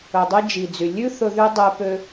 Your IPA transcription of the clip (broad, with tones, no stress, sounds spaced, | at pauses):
ɵ˨ dˤ i˧ d͡ʒ i˨ d͡z y˨ lʲ ʉ˦ θ ɵ˧ ð y˧ dˤ e˧ p ø˧